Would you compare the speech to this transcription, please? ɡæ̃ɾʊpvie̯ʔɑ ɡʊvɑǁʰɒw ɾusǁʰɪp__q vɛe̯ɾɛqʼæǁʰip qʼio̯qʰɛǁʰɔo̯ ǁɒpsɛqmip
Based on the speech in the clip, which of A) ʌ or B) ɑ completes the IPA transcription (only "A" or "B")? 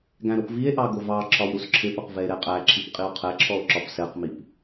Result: A